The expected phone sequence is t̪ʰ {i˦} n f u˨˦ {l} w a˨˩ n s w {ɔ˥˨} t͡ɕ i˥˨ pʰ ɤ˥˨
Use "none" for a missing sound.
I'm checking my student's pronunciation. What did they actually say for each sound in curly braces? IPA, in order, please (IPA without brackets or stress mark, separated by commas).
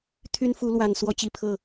y˦, l, ɔ˥˨